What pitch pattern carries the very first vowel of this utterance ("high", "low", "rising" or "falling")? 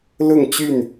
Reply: falling